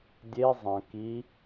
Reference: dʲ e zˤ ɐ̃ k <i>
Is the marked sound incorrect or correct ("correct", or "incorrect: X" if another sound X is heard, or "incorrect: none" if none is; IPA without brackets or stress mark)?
correct